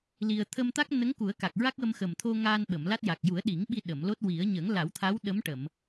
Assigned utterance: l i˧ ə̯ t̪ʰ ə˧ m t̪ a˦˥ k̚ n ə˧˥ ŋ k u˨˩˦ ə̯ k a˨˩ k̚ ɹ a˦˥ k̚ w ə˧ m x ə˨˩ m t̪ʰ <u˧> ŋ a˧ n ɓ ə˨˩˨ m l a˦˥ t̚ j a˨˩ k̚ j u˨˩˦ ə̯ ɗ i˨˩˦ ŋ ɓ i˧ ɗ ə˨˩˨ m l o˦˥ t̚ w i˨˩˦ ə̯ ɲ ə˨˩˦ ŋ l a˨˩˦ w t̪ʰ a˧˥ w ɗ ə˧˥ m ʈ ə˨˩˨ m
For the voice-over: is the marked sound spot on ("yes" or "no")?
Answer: no